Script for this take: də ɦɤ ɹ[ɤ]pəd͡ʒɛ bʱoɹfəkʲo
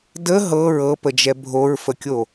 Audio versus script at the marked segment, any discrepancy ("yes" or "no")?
no